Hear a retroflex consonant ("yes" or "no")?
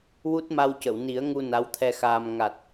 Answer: no